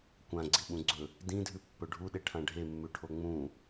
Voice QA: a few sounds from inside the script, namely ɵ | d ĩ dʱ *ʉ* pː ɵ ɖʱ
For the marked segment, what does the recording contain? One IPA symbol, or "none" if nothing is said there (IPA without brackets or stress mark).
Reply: ʉ